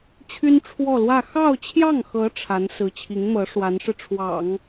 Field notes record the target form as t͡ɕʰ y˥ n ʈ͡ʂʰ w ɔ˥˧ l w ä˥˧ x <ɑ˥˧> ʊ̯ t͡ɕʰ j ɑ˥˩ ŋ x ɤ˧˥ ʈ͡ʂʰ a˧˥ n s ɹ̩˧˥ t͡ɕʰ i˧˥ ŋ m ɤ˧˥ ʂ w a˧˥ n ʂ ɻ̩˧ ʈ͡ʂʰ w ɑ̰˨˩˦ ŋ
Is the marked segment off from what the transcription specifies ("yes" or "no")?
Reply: no